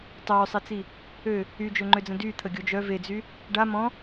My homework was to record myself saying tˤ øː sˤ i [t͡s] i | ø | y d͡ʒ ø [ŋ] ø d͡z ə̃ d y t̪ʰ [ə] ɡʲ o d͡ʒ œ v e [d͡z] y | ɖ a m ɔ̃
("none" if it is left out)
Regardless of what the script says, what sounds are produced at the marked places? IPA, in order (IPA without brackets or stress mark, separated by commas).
t͡s, ŋ͡ǃ, ə, d͡z